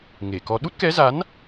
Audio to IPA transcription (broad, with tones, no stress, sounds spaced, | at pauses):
ŋ e˧˩ k ɔ˧ ɗ u˦˥ t̚ k ɛ˨˦ z a˨˦ n